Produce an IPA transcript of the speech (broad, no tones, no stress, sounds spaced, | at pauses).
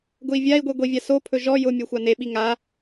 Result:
ɡ ʊ i̯ vʲ a i̯ ɡʷ i ɡʷ i vʲ a s o pʰ ɵ ʒ ɔ j ʊ mʲ o xʷ a n e ɓ i ŋ a